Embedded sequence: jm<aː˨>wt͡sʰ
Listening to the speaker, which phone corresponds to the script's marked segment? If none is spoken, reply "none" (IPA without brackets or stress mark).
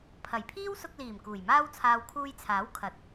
aː˥